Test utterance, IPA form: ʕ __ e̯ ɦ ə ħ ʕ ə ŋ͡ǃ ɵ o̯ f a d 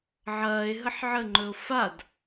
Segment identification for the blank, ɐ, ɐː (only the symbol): ɐː